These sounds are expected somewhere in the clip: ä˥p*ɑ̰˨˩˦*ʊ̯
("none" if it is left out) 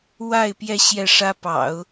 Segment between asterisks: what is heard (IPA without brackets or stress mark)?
ɑ̰˨˩˦